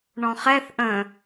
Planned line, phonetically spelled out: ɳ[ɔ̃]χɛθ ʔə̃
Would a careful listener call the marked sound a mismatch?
no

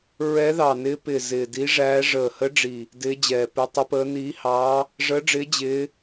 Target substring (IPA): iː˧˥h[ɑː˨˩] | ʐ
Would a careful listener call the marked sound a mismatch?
yes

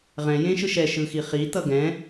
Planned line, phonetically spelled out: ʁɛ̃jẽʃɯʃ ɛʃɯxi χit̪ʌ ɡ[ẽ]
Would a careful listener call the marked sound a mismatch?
yes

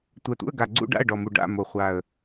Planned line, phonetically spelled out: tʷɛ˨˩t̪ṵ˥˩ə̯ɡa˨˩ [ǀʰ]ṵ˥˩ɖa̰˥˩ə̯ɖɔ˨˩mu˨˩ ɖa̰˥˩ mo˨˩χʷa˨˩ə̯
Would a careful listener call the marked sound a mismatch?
yes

